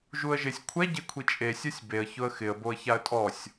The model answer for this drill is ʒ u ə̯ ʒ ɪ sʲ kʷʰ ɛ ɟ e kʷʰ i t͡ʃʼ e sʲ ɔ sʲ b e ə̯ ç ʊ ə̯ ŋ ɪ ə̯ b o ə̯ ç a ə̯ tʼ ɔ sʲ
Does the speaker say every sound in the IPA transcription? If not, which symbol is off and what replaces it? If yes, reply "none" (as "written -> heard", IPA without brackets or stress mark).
ŋ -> x